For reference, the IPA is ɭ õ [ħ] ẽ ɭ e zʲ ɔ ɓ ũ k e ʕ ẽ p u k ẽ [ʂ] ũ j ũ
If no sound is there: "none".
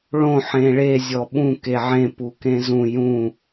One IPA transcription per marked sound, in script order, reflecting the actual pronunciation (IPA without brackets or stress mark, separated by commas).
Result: ħ, z